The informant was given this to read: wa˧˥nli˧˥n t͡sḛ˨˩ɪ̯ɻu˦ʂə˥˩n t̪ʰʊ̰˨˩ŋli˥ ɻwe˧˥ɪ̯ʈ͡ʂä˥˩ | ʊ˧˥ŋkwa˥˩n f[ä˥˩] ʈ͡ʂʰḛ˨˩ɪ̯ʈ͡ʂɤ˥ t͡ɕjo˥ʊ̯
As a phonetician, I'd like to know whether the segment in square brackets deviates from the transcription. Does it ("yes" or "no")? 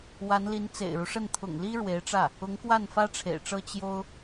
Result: yes